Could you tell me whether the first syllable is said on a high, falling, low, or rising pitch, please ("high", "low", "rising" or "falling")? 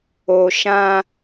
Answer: low